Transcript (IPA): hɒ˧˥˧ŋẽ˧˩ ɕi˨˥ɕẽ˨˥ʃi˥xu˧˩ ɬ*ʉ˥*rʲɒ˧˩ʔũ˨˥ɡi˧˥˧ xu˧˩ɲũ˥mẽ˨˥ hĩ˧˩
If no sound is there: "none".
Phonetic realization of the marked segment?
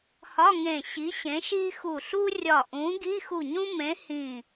u˥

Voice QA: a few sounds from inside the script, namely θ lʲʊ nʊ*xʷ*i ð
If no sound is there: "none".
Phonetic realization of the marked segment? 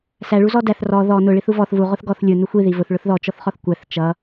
xʷ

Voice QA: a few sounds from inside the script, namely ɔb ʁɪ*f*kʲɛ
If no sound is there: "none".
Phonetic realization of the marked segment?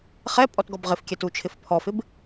f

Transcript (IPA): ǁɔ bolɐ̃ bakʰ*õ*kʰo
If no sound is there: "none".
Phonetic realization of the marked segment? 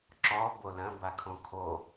õ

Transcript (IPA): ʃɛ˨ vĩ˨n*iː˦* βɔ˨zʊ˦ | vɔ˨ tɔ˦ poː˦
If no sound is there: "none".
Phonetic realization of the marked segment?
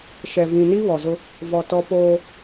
i˦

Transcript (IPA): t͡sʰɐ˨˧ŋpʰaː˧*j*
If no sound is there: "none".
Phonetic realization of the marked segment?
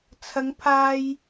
j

